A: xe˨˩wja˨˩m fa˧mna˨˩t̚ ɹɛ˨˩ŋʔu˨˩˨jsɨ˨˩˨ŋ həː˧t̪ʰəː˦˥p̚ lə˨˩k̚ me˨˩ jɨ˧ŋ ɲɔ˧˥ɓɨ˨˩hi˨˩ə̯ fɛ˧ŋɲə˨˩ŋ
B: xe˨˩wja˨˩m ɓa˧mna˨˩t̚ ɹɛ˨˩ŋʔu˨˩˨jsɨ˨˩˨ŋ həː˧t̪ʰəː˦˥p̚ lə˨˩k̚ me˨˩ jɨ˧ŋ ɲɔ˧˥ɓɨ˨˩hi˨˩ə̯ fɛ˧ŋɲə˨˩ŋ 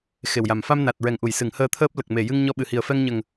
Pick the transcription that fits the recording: A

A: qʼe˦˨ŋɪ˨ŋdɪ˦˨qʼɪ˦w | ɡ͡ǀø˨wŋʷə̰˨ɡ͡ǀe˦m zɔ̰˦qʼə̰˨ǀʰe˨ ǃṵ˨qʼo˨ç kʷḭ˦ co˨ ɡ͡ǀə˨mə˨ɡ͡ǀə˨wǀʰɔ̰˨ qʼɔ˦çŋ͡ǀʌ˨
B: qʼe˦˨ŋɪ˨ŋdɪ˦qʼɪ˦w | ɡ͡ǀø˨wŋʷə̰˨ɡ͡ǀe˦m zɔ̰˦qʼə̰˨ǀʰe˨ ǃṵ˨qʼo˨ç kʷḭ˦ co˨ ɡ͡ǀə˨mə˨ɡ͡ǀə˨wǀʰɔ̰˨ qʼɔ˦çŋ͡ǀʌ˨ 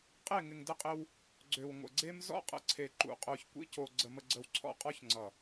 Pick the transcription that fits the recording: A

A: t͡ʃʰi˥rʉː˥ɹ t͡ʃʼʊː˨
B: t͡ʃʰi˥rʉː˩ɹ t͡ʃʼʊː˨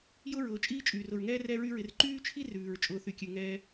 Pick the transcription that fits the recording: B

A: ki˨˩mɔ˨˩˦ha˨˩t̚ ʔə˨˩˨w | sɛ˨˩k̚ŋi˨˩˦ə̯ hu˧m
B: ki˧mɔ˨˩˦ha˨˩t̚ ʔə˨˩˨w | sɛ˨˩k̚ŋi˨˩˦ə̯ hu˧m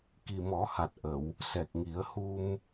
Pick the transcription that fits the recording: A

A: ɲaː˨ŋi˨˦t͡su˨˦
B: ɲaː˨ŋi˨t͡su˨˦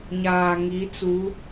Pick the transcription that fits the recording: A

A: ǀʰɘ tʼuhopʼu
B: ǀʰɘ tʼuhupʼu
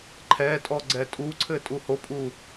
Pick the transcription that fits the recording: A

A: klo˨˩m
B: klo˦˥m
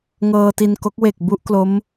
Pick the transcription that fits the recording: B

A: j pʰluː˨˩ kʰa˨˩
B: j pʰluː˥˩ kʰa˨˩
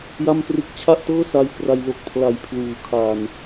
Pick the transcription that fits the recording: A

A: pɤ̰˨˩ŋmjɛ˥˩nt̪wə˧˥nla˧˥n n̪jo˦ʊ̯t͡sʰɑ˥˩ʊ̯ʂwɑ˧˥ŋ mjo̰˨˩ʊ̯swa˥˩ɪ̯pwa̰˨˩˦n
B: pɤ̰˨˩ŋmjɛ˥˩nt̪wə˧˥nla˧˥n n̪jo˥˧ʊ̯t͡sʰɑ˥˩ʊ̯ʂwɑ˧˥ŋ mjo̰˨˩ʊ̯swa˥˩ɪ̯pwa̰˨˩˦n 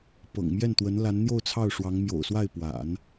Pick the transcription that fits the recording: B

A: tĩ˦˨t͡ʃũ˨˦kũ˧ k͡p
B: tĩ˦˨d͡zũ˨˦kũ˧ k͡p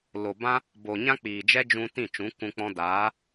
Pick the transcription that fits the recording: A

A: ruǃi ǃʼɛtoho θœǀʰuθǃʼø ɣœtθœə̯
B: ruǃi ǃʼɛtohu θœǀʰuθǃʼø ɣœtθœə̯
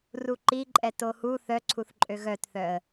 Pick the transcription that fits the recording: B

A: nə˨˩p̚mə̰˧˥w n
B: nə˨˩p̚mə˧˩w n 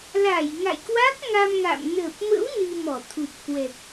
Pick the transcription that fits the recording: A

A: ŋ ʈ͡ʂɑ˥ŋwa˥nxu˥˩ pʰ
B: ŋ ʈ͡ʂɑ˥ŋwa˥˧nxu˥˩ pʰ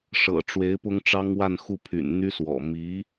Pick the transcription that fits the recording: B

